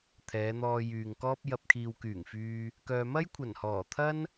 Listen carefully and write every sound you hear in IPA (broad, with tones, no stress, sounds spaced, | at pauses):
t̪ʰ ɛː˨˧ n̪ ɔː˧ j yː˨ ŋ k ɔː˥ p̚ j ɐ˧ p̚ kʰ iː˨ w k yː˨˩ ŋ f yː˧ | k œː˨ m ɐ˥ j kʷʰ ɐ˨˩ n h ɔː˨˩ t̪ʰ ɐ˥ n